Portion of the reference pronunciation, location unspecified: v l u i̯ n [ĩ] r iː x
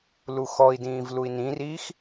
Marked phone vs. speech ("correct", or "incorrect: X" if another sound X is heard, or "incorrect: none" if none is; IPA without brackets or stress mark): correct